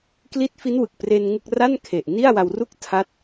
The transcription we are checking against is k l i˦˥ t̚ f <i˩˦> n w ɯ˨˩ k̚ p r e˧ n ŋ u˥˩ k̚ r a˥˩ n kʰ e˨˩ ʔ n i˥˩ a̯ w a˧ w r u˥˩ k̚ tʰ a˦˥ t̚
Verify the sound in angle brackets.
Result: incorrect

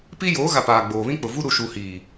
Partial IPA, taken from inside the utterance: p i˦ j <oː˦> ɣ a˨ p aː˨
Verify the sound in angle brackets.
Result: incorrect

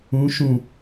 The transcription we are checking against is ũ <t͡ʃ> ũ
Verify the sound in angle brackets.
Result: incorrect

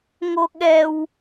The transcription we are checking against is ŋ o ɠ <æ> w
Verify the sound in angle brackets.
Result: incorrect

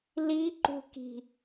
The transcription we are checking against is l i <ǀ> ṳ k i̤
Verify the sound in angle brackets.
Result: incorrect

